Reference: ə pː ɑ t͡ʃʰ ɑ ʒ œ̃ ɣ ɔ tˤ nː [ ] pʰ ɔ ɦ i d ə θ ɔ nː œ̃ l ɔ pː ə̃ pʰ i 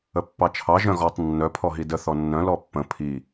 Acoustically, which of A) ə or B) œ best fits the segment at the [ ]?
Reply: B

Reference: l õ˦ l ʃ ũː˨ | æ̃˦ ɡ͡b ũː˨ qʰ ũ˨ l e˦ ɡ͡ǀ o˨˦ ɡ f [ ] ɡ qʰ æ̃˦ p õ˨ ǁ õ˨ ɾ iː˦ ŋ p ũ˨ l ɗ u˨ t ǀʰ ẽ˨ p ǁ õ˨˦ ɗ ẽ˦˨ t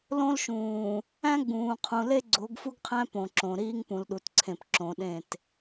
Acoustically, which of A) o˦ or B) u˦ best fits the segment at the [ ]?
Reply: B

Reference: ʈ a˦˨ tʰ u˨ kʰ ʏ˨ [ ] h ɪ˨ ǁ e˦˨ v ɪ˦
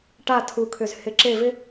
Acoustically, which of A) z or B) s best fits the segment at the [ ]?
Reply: A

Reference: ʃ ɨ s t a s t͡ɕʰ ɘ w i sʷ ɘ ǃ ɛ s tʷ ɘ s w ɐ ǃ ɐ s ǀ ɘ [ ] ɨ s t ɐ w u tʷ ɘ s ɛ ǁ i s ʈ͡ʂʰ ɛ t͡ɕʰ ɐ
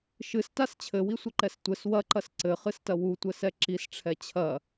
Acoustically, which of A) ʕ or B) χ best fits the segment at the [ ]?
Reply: B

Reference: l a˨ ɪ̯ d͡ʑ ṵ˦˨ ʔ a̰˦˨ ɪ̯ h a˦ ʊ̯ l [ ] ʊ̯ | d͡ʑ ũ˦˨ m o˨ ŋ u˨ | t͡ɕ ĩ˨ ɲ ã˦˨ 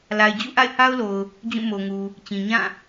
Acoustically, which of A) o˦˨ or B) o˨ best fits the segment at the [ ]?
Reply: B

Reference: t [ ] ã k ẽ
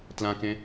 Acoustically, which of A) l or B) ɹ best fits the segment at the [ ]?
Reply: A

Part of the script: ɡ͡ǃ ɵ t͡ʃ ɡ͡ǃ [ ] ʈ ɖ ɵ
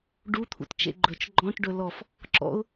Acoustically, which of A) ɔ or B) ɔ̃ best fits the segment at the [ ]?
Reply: B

